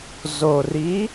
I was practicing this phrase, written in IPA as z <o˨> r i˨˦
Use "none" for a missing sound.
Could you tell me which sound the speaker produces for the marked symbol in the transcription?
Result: o˨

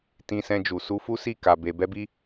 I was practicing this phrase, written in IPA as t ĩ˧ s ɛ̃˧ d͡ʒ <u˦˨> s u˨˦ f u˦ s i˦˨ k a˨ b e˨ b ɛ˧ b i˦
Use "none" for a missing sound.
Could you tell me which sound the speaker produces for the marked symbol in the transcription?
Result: u˨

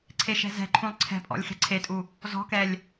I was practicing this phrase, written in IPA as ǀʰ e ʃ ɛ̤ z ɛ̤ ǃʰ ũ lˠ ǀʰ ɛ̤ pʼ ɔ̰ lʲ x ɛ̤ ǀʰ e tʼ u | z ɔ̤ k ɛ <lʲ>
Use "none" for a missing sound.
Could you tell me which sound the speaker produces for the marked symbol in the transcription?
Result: lʲ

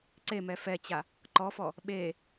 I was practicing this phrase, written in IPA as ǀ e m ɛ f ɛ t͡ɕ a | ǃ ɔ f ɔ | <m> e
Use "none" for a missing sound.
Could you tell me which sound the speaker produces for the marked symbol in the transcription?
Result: ɓ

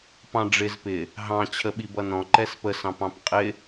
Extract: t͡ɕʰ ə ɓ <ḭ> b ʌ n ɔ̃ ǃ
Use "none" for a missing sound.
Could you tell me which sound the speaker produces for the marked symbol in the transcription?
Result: i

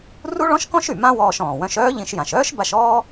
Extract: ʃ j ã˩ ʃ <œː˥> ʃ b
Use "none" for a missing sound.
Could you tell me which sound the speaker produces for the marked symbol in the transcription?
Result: œː˥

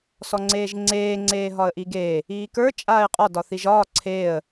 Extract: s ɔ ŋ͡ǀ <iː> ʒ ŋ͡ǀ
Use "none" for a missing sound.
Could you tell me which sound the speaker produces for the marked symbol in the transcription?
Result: eː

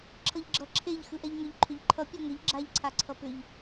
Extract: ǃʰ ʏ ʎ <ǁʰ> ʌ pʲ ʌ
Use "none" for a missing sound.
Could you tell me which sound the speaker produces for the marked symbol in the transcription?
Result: ǃʰ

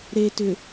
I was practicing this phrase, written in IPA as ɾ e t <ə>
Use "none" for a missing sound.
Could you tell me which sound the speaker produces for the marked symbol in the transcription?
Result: ʏ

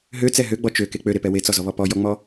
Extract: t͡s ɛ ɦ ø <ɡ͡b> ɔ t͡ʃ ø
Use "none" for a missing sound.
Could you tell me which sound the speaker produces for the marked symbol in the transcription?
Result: ɡ͡b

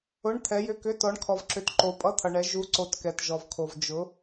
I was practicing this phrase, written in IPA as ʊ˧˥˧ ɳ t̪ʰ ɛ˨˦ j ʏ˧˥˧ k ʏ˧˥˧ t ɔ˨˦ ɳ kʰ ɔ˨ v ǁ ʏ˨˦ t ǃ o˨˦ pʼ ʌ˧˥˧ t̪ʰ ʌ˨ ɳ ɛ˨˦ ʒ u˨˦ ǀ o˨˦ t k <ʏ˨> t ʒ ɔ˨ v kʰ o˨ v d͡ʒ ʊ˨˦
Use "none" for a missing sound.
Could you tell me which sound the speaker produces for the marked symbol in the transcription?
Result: ɛ˨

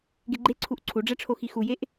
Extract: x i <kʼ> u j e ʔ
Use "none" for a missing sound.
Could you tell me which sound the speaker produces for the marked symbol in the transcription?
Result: x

